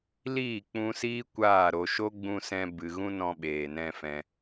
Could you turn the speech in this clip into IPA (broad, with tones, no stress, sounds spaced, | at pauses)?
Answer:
l iː˦˨ k͡p ũ˧ s iː˦ kʷ aː˦˨ ɾ o˧ ʃ o˦ ɡ͡b ũ˧ s ɛ̃˧ b ɨ˨ ɣ ũ˦ n ɔ̃˧ ɓ eː˨ n ɛ̃˧ f ɛ̃˧